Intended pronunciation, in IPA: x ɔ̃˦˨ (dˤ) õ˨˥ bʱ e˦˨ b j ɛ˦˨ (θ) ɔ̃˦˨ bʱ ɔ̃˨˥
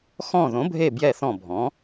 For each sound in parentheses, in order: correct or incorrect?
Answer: incorrect: ð, correct

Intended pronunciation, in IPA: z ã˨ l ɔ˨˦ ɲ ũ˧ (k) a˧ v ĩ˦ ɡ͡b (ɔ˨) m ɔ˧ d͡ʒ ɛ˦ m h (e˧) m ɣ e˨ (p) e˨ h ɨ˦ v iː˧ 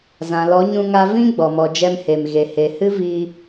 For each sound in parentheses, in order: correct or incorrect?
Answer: incorrect: ŋ, correct, incorrect: e˨, incorrect: h

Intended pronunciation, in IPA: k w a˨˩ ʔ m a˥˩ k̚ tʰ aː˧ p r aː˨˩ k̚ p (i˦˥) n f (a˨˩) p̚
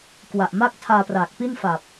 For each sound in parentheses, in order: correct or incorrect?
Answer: incorrect: i˥˩, correct

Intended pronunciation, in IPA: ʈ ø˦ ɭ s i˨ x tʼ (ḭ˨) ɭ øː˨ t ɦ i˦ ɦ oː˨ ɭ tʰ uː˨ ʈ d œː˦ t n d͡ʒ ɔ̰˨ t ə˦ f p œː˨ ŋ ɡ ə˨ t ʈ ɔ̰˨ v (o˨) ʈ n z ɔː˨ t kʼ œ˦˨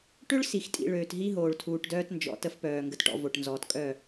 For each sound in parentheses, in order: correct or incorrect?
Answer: correct, correct

